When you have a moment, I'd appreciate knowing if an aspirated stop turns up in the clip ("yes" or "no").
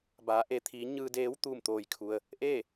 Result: yes